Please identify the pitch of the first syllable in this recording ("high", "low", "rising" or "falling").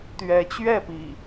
rising